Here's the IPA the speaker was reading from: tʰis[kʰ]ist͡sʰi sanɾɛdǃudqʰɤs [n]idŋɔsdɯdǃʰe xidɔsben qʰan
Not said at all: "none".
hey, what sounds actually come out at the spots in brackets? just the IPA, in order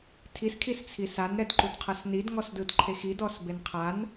kʰ, n

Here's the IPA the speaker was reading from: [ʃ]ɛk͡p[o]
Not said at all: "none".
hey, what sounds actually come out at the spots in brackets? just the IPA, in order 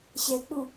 ɕ, u

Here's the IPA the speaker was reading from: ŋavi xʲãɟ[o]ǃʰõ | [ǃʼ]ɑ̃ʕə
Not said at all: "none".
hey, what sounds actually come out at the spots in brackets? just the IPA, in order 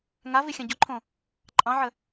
o, ǃʼ

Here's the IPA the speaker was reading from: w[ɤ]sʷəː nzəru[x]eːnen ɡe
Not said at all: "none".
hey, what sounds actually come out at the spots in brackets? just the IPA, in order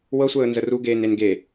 ɤ, ɡ

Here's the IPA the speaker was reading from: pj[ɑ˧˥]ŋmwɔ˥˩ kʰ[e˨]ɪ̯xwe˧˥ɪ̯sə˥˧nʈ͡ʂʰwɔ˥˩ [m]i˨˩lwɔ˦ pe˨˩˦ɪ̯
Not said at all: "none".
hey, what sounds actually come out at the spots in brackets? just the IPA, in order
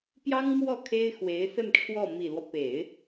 ɑ˥, e˥, m

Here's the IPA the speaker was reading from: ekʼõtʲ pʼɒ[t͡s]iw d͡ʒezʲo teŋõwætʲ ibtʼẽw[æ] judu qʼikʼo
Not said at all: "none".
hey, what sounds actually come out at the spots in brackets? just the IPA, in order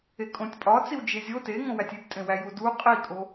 t͡s, æ

